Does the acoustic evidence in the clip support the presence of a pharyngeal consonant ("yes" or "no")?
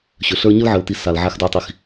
yes